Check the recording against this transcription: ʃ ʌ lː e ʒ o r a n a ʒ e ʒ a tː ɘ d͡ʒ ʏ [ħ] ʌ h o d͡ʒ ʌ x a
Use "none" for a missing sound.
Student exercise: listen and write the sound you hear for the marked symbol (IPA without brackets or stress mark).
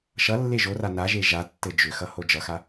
x